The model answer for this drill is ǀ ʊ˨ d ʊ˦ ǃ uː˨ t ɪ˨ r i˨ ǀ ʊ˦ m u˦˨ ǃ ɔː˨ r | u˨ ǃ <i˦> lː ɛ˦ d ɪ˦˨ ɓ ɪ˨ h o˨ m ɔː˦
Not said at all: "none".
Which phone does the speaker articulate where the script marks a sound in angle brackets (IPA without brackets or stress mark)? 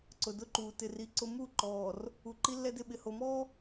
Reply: i˦